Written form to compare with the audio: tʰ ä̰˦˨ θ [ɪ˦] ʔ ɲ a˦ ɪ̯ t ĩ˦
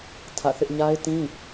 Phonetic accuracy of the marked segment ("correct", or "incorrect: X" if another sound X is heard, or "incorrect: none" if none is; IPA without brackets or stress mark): correct